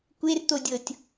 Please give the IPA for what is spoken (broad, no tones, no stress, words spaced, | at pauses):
kʷert̪odʲɤtʲ